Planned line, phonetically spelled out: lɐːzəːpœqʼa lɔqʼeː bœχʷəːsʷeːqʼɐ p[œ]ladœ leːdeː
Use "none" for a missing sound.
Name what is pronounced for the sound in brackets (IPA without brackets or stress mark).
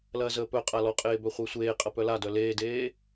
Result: œ